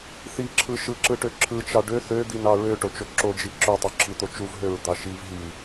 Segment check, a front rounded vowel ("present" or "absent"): present